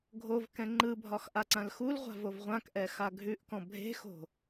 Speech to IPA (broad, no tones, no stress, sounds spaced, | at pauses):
ɡʱ o v k ɛ̃ ŋ͡ǃ ɯ bʱ ɒ x ʔ a ǀ ã l x u l ʁʷ a̤ v o v ʁʷ ã k ʔ ɛ x a ɡʱ ʉ ʔ k ɔ̃ bʱ e̤ x o̤